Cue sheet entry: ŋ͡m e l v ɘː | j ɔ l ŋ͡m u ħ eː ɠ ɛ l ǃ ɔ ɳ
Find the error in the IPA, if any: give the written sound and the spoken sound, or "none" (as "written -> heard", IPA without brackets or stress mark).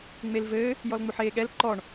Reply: none